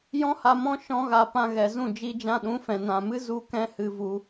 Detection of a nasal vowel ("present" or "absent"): present